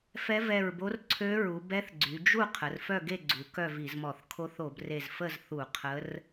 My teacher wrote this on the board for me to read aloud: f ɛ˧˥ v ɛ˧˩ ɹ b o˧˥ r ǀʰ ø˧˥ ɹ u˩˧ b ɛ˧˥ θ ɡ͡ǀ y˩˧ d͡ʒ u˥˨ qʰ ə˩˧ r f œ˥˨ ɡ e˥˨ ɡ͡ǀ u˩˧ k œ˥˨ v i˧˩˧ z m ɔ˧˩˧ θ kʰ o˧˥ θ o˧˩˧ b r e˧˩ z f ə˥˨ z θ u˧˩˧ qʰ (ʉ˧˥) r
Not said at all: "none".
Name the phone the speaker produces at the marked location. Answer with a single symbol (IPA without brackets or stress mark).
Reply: ə˧˥